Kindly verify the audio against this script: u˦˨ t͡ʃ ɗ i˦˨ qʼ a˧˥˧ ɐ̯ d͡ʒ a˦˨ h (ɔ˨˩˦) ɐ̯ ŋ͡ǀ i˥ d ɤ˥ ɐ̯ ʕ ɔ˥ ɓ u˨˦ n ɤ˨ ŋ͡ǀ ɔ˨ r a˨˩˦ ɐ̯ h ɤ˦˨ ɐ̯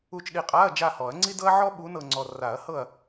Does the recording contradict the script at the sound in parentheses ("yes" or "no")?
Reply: no